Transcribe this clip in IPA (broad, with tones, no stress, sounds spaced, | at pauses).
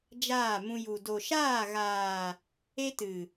d͡ʒ aː˦˨ m ũ˧ j u˨ d o˨ ʃ aː˦˨ ɣ aː˨ | e˦ t ɨ˨